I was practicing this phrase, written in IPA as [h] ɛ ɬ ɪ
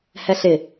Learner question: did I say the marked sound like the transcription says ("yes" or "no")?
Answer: yes